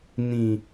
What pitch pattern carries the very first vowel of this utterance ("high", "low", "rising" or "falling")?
low